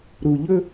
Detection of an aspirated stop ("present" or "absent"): absent